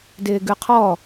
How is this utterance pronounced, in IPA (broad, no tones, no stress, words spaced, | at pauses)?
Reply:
dɪːɡʉqʰɔ